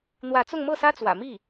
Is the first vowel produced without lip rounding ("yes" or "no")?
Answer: yes